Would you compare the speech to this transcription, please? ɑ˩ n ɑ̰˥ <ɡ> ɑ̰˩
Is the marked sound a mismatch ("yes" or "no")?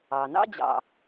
yes